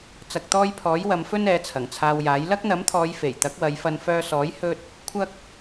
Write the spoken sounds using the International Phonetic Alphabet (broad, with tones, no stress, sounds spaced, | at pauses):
t͡s ɐ˧ k̚ t̪ ɔː˥ j pʰ ɔː˨˥ j w ɐ˨˧ m f ɵ˥ n ɛː˨˥ t͡sʰ ɐ˨˩ ŋ t͡sʰ aː˧ w j aː˨˥ j l ɐ˥ k̚ n̪ ɐ˨˥ m t̪ʰ ɔː˨˧ j f e˨˩ j t̪ ɐ˨˥ k̚ w ɐ˨˧ j f ɐ˧ n f œː˧ s ɔː˨˥ j h ɵ˥ t̚ | kʷʰ ɐ˥ k̚